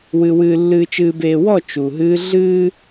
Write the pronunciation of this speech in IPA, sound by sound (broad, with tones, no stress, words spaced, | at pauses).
wɨ˨wɨː˨ lːɨː˨t͡ʃɨː˨beː˨wɔ˦˨ t͡ʃu˨ɦɨː˦ ɮɨː˦